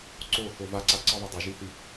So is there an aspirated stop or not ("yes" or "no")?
no